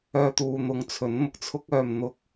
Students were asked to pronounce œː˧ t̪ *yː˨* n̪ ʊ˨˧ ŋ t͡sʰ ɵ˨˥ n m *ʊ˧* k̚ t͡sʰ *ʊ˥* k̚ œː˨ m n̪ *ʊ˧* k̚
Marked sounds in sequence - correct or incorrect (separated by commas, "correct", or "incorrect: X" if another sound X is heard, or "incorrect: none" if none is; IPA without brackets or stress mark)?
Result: incorrect: uː˨, correct, correct, correct